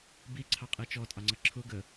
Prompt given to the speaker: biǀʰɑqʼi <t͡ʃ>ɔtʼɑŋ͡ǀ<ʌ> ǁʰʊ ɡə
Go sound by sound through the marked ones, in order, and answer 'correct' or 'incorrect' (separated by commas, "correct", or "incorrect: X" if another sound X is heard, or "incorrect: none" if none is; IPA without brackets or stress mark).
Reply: correct, correct